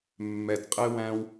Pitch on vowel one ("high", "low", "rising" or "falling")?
low